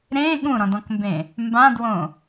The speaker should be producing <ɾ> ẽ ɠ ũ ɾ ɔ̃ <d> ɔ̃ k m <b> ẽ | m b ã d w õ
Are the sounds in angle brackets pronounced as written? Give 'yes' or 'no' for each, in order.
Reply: yes, yes, yes

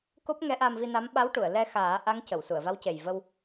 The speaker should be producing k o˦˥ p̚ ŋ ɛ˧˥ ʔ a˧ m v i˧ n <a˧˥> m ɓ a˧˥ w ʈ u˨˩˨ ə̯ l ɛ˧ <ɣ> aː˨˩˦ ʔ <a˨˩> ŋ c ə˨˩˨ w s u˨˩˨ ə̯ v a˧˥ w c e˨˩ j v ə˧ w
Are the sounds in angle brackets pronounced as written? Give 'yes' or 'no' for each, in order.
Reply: yes, no, no

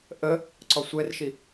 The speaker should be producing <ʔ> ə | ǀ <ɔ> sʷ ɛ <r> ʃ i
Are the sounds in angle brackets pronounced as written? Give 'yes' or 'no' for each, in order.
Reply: yes, yes, yes

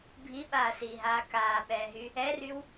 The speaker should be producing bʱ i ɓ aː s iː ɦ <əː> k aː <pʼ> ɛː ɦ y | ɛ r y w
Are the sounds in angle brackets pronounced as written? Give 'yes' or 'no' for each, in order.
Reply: no, no

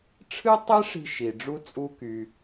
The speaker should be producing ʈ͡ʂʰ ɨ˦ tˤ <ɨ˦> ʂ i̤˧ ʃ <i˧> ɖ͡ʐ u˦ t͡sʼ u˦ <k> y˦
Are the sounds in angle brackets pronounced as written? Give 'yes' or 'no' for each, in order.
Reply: no, no, yes

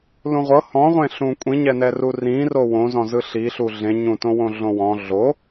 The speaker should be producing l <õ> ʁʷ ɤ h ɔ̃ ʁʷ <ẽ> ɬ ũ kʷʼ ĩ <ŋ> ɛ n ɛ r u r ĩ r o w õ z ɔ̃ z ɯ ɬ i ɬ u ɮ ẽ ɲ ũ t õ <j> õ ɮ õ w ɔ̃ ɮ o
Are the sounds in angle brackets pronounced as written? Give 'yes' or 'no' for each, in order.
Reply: no, yes, no, no

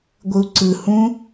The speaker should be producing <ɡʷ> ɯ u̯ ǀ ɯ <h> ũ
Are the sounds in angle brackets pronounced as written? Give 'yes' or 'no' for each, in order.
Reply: yes, yes

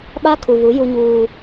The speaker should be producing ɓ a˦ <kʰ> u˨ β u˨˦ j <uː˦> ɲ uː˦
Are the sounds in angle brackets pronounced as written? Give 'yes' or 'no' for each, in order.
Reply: yes, no

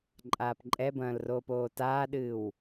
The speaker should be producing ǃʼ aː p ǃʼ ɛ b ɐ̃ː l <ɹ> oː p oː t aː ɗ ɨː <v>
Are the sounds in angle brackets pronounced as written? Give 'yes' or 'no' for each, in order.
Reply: no, no

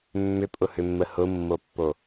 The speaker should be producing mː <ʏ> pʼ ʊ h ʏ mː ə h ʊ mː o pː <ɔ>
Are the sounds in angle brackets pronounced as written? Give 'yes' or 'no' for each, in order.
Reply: yes, no

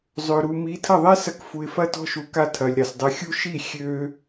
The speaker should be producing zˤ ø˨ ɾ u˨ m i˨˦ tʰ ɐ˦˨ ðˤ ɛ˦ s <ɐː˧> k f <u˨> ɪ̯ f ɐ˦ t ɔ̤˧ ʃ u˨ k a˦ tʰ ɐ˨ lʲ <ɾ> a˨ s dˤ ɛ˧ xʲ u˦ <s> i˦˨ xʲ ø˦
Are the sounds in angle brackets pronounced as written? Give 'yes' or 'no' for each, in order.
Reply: no, yes, yes, no

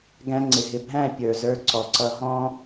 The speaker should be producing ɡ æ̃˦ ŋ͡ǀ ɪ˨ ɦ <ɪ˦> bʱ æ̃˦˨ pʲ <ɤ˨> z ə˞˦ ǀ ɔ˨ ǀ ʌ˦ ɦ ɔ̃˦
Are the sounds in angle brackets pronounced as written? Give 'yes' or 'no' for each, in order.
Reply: no, no

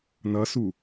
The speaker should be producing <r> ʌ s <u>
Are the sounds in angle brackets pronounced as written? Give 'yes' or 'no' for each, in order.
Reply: no, yes

